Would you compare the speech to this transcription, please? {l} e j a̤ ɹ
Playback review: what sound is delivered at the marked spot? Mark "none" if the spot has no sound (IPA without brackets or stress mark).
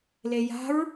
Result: l